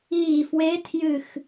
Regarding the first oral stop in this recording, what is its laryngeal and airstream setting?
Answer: aspirated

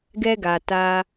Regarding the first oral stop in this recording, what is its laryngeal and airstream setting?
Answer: plain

